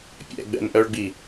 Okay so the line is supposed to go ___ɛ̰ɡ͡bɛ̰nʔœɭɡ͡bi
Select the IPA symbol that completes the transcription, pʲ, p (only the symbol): pʲ